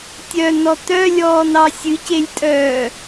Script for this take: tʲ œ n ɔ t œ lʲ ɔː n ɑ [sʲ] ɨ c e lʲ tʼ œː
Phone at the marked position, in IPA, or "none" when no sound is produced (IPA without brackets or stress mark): sʲ